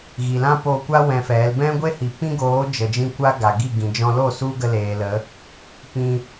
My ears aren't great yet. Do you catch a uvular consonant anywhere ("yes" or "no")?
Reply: no